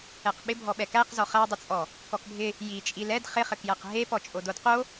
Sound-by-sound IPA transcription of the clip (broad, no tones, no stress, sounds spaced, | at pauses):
ɛ q ɓ ɪ bʱ ɔ ɓ ɛ k æ q z ɔ χ æ dˤ ɪ t͡sʼ ɔ | k ɔ k bʱ ɪ | j i t͡ʃʼ i l ɛ d χ ɪ χ ɘ k j æ q ɦ e p ɔ t͡ʃʼ o d o d q o